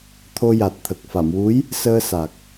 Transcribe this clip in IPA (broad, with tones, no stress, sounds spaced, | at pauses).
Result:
t̪ʰ o˧ j a˨˩ t̚ t̪ʰ ə˨˩ k̚ f a˨˩˨ m w u˧˥ j | s əː˧ s a˨˩ k̚